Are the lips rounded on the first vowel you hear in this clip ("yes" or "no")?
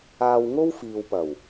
no